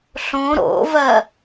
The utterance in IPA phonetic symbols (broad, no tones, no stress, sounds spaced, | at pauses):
ɬ õ ɾ o̰ v ɜ